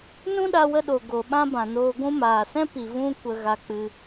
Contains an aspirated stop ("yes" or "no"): no